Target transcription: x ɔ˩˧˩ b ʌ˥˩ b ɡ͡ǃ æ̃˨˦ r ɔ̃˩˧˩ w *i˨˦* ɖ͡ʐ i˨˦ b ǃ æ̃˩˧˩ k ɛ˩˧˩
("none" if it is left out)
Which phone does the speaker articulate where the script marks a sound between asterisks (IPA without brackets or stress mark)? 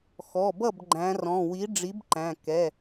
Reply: i˨˦